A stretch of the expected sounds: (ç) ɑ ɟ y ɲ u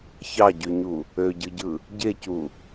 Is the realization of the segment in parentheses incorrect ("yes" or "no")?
no